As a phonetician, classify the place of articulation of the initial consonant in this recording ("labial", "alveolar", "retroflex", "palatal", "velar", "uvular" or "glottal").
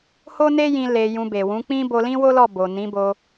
glottal